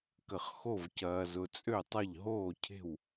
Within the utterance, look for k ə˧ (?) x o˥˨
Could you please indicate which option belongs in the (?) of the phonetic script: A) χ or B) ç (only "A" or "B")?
A